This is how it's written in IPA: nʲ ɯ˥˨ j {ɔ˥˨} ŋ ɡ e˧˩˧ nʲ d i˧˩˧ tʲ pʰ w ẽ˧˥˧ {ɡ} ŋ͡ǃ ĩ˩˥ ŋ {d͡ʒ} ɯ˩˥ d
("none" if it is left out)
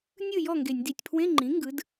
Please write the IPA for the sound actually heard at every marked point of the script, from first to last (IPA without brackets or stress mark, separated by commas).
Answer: ɔ˥˨, none, ɡ